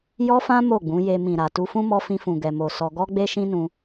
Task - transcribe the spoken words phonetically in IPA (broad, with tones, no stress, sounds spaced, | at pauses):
j ɔ˦ f ã˦ m o˦˨ ɡ͡b ũ˨˦ j e˧ m ĩ˨ ɾ a˨ t u˧ f ũ˦ m ɔ˦ f ĩ˧ f ũ˨ ɡ ɛ˨ m o˨ s ɔ˧ ɡ ɔ˦ ɡ͡b e˦ ʃ ĩ˦ n ũ˧